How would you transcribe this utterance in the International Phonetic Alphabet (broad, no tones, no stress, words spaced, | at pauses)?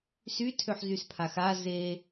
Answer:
sytʰøħzyspʰax a ze